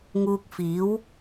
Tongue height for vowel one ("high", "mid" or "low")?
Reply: high